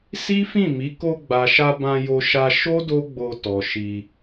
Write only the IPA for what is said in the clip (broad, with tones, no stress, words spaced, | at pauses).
si˦fĩ˦˨ mi˨˦ ko˧ɡ͡ba˨ʃa˧ bã˧jo˧ʃa˧ ʃo˦ do˦ɡ͡bo˧ tɔ˨ʃi˧